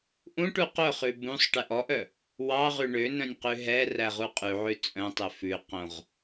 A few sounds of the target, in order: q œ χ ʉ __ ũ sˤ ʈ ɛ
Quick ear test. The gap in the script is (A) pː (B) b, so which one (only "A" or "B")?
B